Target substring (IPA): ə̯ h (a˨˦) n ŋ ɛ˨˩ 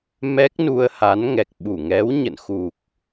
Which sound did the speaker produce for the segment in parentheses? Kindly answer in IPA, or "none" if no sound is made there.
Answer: a˨˦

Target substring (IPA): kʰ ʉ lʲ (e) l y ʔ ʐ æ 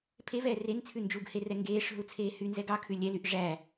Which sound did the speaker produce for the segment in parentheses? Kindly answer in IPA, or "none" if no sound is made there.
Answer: ɛ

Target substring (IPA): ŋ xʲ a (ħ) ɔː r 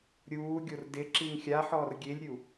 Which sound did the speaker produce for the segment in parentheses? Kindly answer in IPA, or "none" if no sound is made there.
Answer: ħ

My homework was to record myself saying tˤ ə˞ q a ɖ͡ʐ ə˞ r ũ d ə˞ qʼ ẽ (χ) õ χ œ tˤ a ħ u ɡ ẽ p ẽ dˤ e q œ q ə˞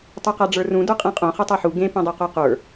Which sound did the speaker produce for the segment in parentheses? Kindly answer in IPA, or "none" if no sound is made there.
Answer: qʼ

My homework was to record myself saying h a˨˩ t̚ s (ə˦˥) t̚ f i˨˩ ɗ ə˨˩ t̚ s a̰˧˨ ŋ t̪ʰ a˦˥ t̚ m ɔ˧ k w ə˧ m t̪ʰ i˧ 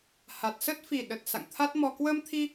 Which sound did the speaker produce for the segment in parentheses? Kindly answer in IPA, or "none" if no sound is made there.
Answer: ə˦˥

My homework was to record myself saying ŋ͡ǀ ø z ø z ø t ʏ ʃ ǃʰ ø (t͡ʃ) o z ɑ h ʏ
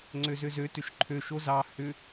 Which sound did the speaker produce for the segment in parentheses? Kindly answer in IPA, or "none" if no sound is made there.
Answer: ʃ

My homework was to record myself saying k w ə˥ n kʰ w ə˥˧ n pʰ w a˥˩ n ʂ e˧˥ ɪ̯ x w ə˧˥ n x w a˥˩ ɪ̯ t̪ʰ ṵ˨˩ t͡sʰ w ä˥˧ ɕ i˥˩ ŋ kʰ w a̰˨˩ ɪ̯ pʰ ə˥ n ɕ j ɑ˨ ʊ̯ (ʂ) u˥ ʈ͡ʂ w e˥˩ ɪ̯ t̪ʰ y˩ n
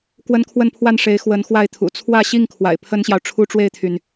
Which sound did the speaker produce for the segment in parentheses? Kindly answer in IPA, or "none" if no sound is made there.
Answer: ʈ͡ʂʰ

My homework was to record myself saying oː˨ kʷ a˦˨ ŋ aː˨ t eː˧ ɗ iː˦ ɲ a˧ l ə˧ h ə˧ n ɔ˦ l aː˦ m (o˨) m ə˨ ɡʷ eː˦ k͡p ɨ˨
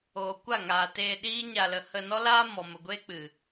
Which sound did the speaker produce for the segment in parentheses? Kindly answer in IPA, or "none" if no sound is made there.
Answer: ɔ˨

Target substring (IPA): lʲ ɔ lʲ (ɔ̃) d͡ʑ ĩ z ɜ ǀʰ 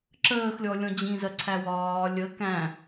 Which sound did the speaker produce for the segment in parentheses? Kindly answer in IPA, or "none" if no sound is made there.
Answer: ɔ̃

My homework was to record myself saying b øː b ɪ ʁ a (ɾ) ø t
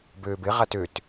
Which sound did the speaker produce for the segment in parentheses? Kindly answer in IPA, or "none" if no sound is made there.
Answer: t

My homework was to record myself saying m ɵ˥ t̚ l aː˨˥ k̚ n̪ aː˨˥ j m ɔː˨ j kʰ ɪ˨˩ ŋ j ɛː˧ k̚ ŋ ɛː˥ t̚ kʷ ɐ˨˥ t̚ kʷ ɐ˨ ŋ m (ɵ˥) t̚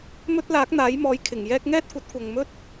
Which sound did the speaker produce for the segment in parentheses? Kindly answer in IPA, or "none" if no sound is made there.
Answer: ɵ˥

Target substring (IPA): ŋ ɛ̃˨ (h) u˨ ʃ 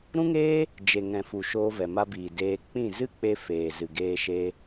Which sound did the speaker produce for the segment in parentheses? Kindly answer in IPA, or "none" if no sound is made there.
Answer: f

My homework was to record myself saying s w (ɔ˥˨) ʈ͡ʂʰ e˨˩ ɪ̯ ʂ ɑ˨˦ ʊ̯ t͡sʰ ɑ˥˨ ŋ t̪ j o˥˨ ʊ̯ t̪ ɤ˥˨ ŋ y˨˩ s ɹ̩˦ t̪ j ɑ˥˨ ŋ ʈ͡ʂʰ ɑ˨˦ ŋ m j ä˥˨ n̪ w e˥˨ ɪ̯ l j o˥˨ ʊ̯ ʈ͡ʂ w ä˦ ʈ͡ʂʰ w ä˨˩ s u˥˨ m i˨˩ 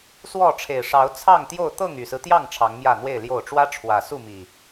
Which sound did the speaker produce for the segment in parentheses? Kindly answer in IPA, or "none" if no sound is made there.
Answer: ɔ˥˨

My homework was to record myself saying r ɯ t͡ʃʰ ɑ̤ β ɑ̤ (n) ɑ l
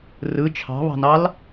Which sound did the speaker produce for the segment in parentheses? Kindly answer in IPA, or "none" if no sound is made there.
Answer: n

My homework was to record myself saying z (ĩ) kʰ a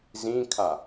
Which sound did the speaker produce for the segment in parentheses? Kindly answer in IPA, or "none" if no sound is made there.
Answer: ĩ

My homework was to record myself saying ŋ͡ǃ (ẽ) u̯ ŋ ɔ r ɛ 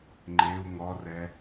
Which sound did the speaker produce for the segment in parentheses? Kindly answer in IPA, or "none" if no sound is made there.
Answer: e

